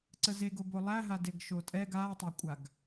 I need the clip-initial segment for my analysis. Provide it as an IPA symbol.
ǀ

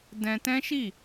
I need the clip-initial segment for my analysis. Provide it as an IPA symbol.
d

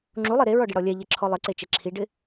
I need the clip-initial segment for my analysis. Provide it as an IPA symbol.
ŋ͡ǁ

